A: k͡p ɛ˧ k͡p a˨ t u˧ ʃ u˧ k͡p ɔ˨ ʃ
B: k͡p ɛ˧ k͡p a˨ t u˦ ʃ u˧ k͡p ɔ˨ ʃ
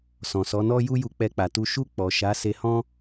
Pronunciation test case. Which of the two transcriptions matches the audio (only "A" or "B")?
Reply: A